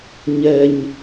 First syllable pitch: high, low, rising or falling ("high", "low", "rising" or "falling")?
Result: low